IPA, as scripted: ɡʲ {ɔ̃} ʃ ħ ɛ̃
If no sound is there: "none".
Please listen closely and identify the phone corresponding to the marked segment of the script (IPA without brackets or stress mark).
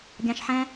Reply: ɑ̃